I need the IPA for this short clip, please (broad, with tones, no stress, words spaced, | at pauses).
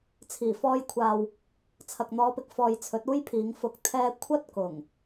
t͡sʰiː˨˩fɔː˧jkʷʰaː˨w | t͡sʰɐ˨k̚n̪ɔː˨˧pɪ˨k̚fɔː˨j t͡sʰɵ˨˥t̚uː˥jpʰiː˨˧ŋfʊ˧k̚ t̪ʰɛː˥ kʷʰɐ˥t̚ kʊ˨˩ŋ